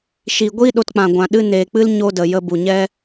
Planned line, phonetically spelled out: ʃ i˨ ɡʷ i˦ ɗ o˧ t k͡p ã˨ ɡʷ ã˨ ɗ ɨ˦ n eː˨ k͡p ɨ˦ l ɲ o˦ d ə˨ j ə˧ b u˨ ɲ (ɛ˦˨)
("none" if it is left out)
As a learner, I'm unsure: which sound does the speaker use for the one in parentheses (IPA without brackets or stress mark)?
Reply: ɛ˦